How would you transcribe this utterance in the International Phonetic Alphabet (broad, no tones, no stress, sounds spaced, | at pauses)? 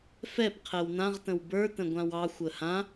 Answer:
f ɛ p qʰ ɛ w n ã ʁ t ə̃ w b ə˞ t ə̃ ɡʷ ã w ɑ xʷ ə h ã